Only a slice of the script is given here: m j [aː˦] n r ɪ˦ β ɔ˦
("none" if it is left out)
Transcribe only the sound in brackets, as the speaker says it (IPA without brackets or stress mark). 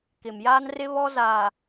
aː˦